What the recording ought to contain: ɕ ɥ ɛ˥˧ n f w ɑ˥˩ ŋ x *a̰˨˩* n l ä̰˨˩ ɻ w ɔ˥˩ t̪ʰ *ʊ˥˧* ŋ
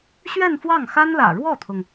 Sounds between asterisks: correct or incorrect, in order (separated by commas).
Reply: incorrect, incorrect